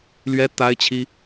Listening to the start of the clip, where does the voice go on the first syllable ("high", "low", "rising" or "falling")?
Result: high